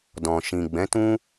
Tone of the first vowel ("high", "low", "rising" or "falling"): low